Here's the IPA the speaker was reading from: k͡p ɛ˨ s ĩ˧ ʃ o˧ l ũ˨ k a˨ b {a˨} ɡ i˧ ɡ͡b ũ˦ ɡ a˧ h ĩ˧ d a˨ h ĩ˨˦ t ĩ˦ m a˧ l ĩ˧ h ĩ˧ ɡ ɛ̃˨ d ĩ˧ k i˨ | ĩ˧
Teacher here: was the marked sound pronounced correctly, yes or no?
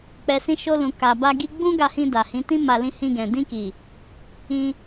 no